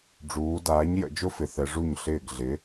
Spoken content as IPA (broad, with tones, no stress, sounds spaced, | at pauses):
ɖ͡ʐ uː˩˧ d aː˩˥ ɲ j ə̰˩˧ d͡ʒ ʊ˥ f ɪ˩˧ θ ɛ˩˧ ʐ u˥˩ ɲ ɬ ɪː˥˩ ɡ ɮ ɪ˩˥